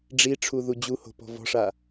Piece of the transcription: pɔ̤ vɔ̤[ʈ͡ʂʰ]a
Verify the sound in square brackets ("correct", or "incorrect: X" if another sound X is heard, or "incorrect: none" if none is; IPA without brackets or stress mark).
incorrect: ʂ